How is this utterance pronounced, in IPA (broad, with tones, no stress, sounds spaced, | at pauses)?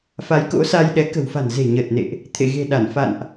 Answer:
f a˨˦ j k o̰˧˥ s a˧ j ɗ ɛ˨˦ k ə̤˨˩ w f a̤˨˩ n z e̤˨˩ ɲ əː˨˩ t̚ n ḛ˧˨ ʔ | t̪ʰ ḛ˧˨ ɣ e̤˨˩ ɗ a˧˩ n f a̰˧˨ n ʔ